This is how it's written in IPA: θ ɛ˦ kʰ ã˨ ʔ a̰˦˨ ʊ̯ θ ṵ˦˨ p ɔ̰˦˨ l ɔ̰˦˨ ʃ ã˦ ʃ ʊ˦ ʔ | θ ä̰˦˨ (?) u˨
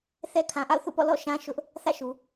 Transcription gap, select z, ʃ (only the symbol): ʃ